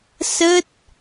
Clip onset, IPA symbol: s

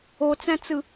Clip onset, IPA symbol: o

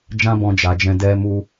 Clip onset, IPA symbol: d͡ʒ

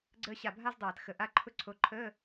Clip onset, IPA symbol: ɡ͡ǀ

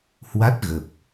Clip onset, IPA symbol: h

